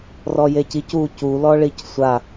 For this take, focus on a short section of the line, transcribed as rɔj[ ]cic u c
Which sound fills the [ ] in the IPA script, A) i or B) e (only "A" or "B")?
B